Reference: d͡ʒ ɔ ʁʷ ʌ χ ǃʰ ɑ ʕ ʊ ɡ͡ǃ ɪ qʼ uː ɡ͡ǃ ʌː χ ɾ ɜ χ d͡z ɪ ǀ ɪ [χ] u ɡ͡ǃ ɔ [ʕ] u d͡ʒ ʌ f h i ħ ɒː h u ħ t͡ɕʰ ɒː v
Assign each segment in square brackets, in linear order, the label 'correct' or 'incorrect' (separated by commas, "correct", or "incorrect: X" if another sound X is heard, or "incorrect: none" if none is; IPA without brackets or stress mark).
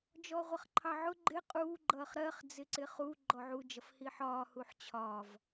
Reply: correct, correct